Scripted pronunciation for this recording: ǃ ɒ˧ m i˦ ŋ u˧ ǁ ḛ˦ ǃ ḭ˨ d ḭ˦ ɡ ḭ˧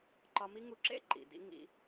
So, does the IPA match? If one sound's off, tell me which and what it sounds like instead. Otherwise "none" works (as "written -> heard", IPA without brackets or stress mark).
ɡ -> ŋ